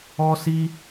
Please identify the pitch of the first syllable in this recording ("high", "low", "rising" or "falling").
high